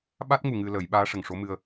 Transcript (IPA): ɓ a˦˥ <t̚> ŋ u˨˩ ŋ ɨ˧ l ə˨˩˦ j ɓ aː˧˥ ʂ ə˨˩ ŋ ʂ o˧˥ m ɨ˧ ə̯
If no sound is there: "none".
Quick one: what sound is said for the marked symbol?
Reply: t̚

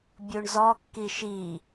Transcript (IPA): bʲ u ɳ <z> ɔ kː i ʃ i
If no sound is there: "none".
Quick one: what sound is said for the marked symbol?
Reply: z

